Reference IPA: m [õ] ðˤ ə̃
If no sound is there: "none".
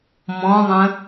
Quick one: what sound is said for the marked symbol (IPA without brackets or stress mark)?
ɔ̃